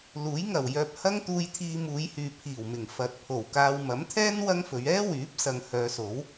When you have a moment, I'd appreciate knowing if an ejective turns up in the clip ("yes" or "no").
no